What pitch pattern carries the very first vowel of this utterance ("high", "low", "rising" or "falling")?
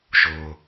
low